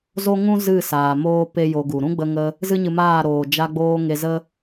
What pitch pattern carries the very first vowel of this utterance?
high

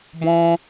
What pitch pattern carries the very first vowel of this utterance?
high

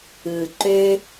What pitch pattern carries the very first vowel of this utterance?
low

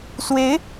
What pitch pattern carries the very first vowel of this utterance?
rising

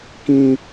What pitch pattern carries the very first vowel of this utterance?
high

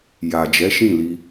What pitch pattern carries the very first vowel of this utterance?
low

